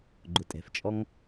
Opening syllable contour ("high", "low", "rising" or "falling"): low